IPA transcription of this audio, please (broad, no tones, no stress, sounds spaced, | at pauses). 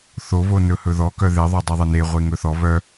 θ o β o n ɵ h ɵ ð ɔ k œ ð e ðˤ o dˤ i ðˤ e n e ʁʷ e ŋ ɵ θ ɔ β œ